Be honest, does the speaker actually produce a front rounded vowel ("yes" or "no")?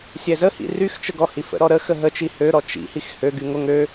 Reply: yes